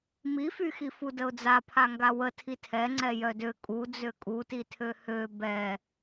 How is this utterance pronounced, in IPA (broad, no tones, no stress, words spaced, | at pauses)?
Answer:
mifyxi fudəʊ̯d͡za pʰaŋɡawə tʰitʰɛ ŋ͡ǀɛjœdø kʼu d͡zøkʼutitʰø hø bɛ